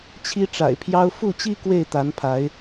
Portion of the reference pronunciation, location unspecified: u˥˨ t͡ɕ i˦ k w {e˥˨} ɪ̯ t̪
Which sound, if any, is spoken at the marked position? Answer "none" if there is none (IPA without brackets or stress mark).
e˥˨